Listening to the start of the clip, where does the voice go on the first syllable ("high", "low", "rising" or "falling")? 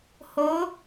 rising